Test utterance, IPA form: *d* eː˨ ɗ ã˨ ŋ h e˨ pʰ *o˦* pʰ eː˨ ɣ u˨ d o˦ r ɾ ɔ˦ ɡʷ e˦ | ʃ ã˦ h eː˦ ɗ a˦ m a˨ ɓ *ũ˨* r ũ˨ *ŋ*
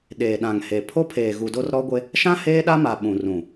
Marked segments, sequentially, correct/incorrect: incorrect: ɗ, correct, correct, incorrect: none

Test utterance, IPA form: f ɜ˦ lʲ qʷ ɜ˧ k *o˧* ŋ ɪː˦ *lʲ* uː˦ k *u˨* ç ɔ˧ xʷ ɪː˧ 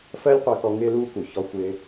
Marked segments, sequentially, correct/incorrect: incorrect: ɔ˧, incorrect: l, correct

